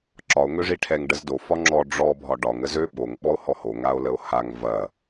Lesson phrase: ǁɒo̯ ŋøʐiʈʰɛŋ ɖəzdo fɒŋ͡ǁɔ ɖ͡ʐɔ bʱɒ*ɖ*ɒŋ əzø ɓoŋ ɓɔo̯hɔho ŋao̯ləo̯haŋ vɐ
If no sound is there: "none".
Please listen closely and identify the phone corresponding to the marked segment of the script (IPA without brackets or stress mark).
ɖ